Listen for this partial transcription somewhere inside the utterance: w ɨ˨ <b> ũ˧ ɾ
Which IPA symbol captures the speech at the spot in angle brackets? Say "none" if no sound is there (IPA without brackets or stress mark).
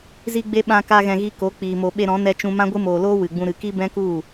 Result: ɡ͡b